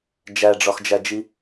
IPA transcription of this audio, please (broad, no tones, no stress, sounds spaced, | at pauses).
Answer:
d͡ʒ æ ɖ͡ʐ ɒ x d͡ʒ æ d͡ʒ i